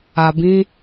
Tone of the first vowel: low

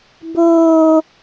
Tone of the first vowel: high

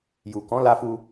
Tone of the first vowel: low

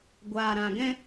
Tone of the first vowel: low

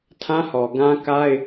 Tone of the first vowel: high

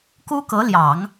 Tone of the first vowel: high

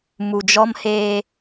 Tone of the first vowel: low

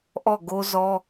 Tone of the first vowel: falling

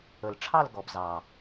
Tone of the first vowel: low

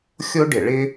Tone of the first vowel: high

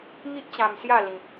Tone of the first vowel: high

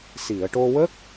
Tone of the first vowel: low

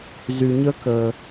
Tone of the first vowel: low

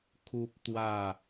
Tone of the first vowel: high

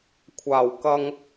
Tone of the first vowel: low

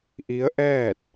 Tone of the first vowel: rising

